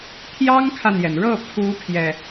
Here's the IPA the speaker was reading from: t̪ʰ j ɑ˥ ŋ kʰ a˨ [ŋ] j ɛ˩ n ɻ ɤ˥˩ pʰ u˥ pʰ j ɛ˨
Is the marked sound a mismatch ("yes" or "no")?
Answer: yes